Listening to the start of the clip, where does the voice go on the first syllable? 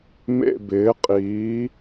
falling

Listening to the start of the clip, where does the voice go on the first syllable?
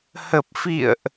low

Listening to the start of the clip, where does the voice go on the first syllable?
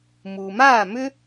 low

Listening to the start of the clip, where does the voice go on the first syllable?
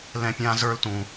high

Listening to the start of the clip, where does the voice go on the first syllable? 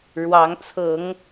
rising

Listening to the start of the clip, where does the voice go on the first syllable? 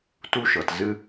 high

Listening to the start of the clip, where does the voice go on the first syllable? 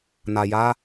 low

